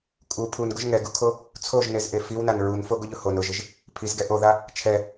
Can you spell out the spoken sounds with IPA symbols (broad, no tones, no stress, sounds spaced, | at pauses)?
kʼ u pʰ u n ɡ ʊ ʒ ŋ ɛ ɡ u kʰ o | t͡sʰ o ʒ n e z ʔ e f i w n a n ɹ u n f o ɡ ʊ ʎ ʊ h o n ʊ ʒ ɪ ʒ | pʰ i z ɡ ɛ ʔ o ð a | t͡ʃʰ ɛ